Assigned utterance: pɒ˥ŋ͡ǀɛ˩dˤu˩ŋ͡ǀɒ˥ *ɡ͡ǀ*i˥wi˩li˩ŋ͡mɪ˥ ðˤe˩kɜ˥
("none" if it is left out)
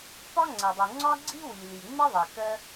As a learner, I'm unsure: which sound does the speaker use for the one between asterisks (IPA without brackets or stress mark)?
ɡ͡ǀ